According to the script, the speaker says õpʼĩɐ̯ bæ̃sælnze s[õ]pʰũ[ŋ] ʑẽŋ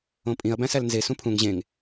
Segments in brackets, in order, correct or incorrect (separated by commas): incorrect, correct